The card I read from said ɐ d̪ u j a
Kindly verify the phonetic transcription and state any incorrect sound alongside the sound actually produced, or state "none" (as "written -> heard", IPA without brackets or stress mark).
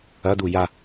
none